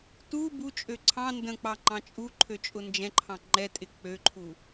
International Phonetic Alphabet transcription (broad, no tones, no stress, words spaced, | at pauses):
tu but͡ʃʼø ǀʰɑ̃ ndə̃k͡pɑ ŋ͡ǃɑ̃t͡ʃʼuǃʰø t͡ʃʼʊnd͡ʒɛ̃ǃʰɑ̃ ŋ͡ǃɛtʼɪ k͡pøǃʰu